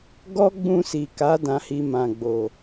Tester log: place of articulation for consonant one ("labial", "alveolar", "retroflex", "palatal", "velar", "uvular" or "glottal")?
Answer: velar